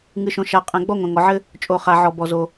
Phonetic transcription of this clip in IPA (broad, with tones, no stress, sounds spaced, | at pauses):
ŋ ɨ˩ ʃ õ˩ ʃ a˩ qʼ ɛ̃˩ ɡ͡b ɔ˥ ŋʷ ɛ̃˩ ŋ ɔ˩ ʕ ɘ˥ | t͡ʃʼ o˩ χ a˩ ʕ ɔ˩ b ɔ˩ z o˩